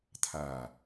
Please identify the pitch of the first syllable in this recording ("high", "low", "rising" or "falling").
low